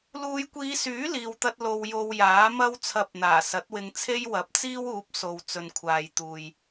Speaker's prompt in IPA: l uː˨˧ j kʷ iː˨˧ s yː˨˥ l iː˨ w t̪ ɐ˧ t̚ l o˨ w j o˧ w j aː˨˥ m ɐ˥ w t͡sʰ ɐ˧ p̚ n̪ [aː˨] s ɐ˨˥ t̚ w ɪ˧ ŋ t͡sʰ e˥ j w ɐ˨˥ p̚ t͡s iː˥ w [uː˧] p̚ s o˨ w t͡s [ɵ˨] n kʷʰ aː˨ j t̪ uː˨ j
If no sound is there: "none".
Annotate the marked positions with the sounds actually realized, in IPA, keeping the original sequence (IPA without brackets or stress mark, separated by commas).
aː˨˩, uː˨˥, ɵ˨